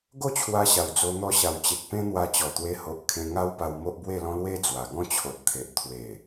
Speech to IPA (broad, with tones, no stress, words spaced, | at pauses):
ɡo˥˧t͡ɕʰwa˧ɕa˨˩w d͡zo˧n̪ɔ˧ɕa˨˩wt͡ɕe˨k̚ pẽ˦n̪wa˧t͡ɕɔ˨˩ t̪we˧ho˨ʔ kʰẽ˧ŋa˦w pa˧wmo˦ʔbwe˥˧lɔ̃˦ lwe˦d͡zwa˨˩ɡɔ̃˥˧t͡ɕʰo˨t̚ t̪ʰe˨ʔ t̪ʰwe˨˩